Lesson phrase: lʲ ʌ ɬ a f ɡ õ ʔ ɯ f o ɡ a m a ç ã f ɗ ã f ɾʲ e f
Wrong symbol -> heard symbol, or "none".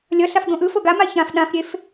none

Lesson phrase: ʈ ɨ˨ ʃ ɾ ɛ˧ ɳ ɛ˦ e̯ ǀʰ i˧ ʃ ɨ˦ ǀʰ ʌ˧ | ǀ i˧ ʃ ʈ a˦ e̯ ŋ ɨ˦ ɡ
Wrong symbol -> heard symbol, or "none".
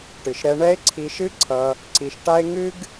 none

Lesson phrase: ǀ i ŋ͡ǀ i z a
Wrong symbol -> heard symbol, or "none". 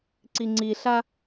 z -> ɬ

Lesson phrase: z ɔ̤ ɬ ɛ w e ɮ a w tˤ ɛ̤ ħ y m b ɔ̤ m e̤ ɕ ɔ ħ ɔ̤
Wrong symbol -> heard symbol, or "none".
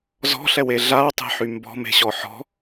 none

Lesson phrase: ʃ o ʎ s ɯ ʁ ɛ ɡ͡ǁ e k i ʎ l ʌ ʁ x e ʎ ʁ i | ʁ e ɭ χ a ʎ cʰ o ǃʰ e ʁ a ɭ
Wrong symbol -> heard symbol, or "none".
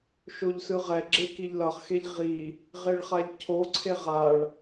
ǃʰ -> ǀʰ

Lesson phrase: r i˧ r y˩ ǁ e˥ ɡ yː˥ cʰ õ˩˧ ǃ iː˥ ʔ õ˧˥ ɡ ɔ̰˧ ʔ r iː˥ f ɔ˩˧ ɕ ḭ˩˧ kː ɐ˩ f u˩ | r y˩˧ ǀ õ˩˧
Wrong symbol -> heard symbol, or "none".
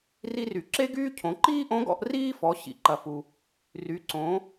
kː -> ǃ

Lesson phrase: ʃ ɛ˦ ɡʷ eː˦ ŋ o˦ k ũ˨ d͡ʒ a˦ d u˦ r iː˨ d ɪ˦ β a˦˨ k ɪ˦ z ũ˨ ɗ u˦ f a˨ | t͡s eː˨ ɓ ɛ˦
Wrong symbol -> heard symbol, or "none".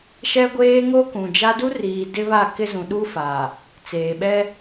none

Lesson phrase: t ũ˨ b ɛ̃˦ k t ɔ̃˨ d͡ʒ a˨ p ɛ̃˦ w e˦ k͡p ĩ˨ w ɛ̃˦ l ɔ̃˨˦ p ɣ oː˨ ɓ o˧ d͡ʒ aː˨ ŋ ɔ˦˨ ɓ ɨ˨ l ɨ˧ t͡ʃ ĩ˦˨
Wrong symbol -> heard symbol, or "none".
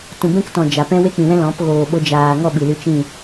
none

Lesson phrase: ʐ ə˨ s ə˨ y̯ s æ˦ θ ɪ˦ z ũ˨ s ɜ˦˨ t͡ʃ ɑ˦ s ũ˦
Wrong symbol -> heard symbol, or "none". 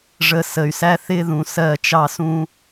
z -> ð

